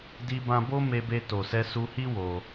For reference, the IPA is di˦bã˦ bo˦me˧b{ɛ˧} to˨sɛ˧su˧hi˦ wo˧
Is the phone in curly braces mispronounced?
yes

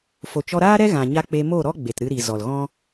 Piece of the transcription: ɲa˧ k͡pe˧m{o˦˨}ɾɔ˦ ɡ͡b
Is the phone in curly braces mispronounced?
no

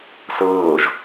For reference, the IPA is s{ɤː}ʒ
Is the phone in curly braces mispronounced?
no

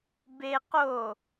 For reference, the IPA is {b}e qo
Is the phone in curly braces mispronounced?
no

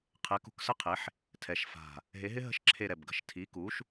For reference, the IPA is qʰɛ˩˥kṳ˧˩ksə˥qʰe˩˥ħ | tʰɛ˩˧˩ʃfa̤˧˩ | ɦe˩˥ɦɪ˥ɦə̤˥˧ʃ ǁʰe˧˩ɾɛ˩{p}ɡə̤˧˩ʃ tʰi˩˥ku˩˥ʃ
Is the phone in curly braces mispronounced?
yes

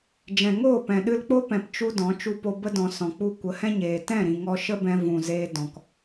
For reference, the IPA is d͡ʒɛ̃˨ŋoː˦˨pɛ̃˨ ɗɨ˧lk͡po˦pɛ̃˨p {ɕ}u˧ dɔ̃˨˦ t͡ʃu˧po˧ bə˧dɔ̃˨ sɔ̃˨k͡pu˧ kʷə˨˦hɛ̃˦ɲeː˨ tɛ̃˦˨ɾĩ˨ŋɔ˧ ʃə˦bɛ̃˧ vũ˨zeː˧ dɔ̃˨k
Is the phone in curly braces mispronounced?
yes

